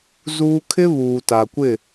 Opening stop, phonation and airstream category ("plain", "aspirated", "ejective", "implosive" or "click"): aspirated